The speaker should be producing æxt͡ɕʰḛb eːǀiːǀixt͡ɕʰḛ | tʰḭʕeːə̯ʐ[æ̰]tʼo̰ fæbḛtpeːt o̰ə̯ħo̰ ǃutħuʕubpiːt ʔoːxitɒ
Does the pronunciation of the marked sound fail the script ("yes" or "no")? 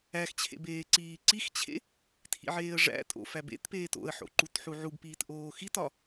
no